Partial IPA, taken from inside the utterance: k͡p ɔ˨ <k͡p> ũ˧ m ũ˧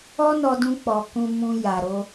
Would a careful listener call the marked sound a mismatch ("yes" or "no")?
yes